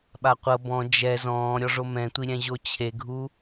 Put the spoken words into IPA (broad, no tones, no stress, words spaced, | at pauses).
ɓaqʷɤ bɔ̃ d͡ʒɛ zɔ̃ː ɾʲɔʐomɛ̃tʷi ɾʲɛ̃ʑot͡ɕʰeɡʱu